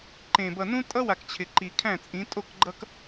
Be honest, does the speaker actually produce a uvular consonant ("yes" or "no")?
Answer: no